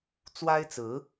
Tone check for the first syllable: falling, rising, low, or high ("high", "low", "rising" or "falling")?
high